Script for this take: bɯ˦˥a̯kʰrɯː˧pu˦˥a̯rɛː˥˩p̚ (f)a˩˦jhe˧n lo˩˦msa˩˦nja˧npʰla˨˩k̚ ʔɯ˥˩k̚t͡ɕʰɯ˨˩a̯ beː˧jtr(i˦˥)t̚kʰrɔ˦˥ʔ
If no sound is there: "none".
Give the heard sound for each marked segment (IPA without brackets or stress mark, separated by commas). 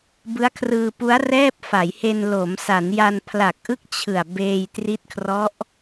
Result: f, i˦˥